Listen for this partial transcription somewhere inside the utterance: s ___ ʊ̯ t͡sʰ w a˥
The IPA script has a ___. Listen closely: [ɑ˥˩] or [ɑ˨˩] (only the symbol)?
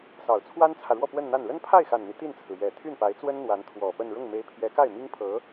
ɑ˨˩